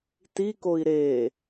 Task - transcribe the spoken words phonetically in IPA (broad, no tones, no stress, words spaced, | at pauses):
tikoi̯ ɾe